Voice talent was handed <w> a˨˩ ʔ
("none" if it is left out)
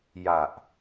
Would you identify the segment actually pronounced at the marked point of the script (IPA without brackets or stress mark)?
j